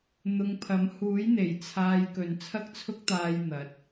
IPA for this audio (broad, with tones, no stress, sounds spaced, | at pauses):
n̪ ʊ˧ ŋ pʰ ɐ˨˥ m h uː˨˥ j n̪ e˨˩ j t͡sʰ aː˧ j k ɵ˨ n t͡sʰ ɐ˥ k̚ t͡sʰ ʊ˥ k̚ t̪ aː˧ j n̪ ɐ˨˥ t̚